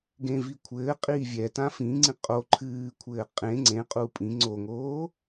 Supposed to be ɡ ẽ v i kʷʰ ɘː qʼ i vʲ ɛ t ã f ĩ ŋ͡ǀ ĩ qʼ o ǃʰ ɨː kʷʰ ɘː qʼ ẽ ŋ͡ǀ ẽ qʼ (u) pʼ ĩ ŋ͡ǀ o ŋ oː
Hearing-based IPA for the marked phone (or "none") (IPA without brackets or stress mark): u